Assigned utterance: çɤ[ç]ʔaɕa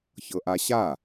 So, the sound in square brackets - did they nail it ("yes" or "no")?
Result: no